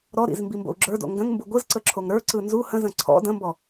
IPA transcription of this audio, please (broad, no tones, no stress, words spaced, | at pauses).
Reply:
ɾɔɾḭz mbimbo̰u̯ɡ͡ǁə˞do̰ ŋɡə̃ŋmbu ɡʷɯzǀə ǁʰoŋɾə˞ǀɯ nzu hə̃zə̃ ǀʰɔ̰ də̃mbɔ